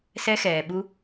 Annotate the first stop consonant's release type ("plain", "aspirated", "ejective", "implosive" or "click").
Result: implosive